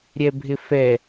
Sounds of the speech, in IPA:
ɾʲɛbʱɪfɛ

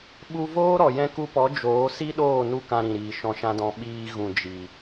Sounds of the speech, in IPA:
ɓu˧voː˦ɾɔ˨ jɛ̃˧ku˧pɔ˨˦ d͡ʒoː˨˦si˦ɗoː˦˨ nu˦kã˧ɾĩ˨ɾiː˨ ʃɔ̃˧ʃã˦dɔ̃˧ ɓiː˧ɣũ˨d͡ʒi˨

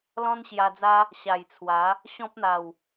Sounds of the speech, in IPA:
lɔ̃˦nɕja˧d͡za˦ | ɕa˨˩jt͡sʰwa˨˦ | ɕɔ̃˦p̚n̪a˨˩w

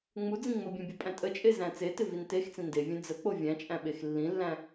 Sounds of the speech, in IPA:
ŋ͡mud͡zĩ ŋ͡mobʲẽbʲupʼæ̃ tʼət͡ʃʼezæ̃ t͡setɪvin text͡sĩ ndevʲẽ d͡zək͡po vʲæ̃t͡ʃʼæ̃ɓex lːĩlːæ̃

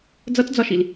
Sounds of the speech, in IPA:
d͡zʌt͡sd͡zɒʃil

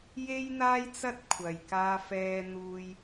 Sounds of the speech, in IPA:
je˥jn̪aː˥jt͡sɐ˥t̚kʷʰɐ˨j kaː˥fɛː˥n̪uː˥j

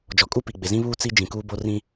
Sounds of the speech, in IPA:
d͡ʒɔ˨kʼu˦pi˨ɡ͡bɪ˨ zĩ˦βuː˦ t͡si˦ d͡ʒĩ˨kuː˦bo˦ rĩ˦

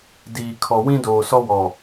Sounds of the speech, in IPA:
diː˨ kʰɔ˨ wĩ˦doː˨sɔ˦ wɔ˨

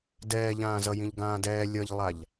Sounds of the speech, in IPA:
dɛːʎãːzʌjĩʎ ɡãːdɛː lʲʌʎlˠaʎ

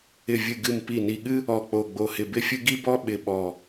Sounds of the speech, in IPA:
ɪ˧˩vʲɨ˧˩ɡɨ˧˩m pi˧˩ni˧˩ɠɨ˥ | ɔ˧˩k͡po˧˩ ɡ͡bo˧˩hɪ˧˩bɪ˥fʲɨ˥ ɡi˥bɔ˥ ɓɪ˧˩ɓɔ˧˩

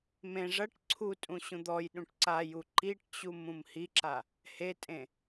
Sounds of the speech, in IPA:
mẽ ʐɐʈ ǀʰutʼũ ɕũd̪ɔjɗũʈ ǀaju ǃiʈt͡ɕum ũmhiǁa | hetʼẽ

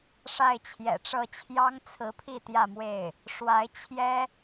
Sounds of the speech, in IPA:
ʂa˥˩ɪ̯t͡ɕʰjɛ̰˨˩ʈ͡ʂɤ˥˩ t͡ɕʰjɑ˥ŋt͡sʰɹ̩˧˥pʰi˥˧ t̪jä˥˧mwe˥˩ɪ̯ | ʂwa˧˥ɪ̯ t͡ɕʰjɛ˥

